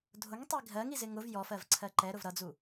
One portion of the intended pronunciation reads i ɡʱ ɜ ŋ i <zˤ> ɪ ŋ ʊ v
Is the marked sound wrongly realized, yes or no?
yes